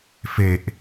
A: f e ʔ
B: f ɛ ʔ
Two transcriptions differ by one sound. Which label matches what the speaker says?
A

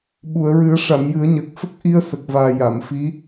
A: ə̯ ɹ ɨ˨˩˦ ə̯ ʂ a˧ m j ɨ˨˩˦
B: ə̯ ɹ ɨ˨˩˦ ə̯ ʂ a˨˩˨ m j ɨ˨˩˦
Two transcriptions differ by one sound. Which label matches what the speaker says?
B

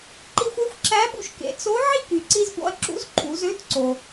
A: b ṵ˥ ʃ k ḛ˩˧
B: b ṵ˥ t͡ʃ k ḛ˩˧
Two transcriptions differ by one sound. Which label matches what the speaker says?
A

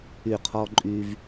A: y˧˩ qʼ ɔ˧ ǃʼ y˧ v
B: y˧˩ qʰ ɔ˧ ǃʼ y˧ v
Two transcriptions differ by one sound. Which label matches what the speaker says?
B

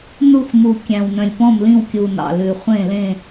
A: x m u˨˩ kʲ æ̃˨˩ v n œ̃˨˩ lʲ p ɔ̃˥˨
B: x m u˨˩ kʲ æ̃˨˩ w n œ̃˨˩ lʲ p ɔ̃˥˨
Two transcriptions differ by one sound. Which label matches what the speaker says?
B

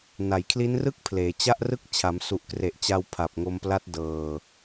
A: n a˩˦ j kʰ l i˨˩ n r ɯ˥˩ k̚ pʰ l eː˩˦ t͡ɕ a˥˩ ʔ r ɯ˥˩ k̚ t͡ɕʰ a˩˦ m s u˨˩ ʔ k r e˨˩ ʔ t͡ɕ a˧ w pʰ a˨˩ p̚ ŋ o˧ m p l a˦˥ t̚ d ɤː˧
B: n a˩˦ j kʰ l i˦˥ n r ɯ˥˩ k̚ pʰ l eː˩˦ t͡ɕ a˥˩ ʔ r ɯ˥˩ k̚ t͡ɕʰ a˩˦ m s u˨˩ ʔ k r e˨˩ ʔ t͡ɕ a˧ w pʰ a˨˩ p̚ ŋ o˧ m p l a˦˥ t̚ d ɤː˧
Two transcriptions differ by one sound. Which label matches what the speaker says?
B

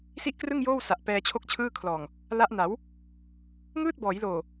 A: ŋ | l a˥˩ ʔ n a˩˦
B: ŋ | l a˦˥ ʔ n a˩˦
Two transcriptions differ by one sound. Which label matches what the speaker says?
B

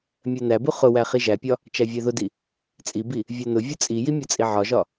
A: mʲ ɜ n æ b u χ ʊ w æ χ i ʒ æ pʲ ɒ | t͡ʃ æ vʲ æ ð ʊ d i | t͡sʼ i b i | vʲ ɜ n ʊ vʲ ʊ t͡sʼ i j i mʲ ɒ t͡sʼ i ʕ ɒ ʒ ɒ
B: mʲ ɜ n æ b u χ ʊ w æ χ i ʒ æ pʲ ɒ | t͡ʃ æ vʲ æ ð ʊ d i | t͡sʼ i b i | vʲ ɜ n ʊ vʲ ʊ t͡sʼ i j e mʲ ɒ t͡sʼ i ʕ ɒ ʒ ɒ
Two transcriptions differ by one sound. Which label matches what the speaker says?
A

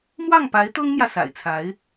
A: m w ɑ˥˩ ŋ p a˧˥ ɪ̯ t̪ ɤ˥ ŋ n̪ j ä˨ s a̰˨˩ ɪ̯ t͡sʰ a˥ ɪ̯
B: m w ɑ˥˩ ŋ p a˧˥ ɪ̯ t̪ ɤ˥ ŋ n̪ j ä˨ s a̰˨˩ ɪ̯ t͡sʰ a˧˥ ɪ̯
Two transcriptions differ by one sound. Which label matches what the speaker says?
B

